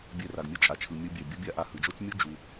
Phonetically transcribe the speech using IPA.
bʲ ɛ˧ r a˩ ɡ mʲ ʌ˥ t͡ʃʼ a˩ t͡ʃʰ ɯ˩ mʲ ɯ˧ bʲ ɛ˩ bʲ ʌ˥ bʲ a˥ ʔ a˧ h ɯ˩ d͡ʒ o˥ t͡ʃ mʲ u˥ d͡ʒ u˩

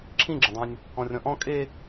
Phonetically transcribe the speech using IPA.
ǁʰ ĩ ɡ͡ǁ ã dˤ ã nʲ | ɔ̃ rʲ ɔ̃ ʔ ɔ̃ kʼ e

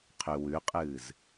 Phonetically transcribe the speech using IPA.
qʰ ʉ w ʉ qʼ ɨː z

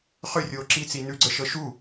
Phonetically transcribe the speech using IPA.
χ ø rʲ oː ǁ i t͡s i n ʉ ɡ͡ǀ ə ʃ ɤ ʃ u

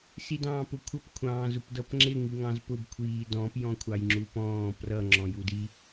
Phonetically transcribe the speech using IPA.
s i d ɑ̃ː p ʊ kʷʰ ʌ p kʷʰ ɑ̃ː z ʊ p d ʌ p ŋ͡ǁ ɪ ŋ i ŋ ɑ̃ z p ʊ b kʷʰ iː d ɔ̃ p j ɔ̃ kʷʰ ɑ j ŋ͡ǁ u p ɔ̃ː p r ʌ ŋ͡ǁ ɔ̃ j u d i

